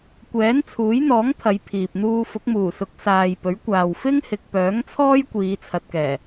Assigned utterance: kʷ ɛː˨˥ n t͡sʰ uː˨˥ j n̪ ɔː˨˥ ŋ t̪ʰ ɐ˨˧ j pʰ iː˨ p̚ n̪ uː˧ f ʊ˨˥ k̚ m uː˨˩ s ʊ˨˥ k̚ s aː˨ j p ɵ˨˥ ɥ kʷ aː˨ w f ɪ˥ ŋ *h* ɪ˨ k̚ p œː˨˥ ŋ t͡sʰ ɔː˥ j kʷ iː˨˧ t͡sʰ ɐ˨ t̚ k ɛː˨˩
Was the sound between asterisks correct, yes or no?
yes